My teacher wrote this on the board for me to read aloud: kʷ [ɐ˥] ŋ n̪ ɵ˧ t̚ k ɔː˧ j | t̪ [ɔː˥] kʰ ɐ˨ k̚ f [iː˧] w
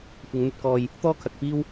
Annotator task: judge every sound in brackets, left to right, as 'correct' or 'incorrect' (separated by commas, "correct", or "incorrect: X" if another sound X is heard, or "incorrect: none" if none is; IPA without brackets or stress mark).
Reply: incorrect: ɐ˨˧, correct, incorrect: iː˥